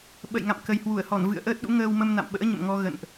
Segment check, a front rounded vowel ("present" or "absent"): absent